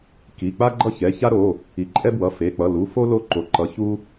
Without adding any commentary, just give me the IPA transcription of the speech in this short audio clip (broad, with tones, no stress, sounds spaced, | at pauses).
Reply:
k i˩˧˩ k͡p a˦ ɡ͡ǃ ʌ˦ ç ɛ˩˧˩ ç a˦ ɾ o˩˧˩ | i˩˧˩ ǃʼ ɛ˦ b w ʌ˩˧˩ f e˩˧˩ k͡p ʌ˩˧˩ l u˩˧˩ f o˦ l o˦ ǃ o˩˧˩ ǃ ʌ˩˧˩ ç u˦